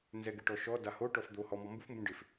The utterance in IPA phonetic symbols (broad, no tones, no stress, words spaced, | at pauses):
nzɛɡɪʈɔʃɔ daho ʈɔfd̪o hɔ mɔmbuf mbũɖɪf